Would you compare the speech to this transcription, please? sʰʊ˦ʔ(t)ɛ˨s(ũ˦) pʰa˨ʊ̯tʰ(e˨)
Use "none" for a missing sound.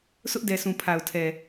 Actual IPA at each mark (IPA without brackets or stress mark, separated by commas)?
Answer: d, ũ˨, ɛ˨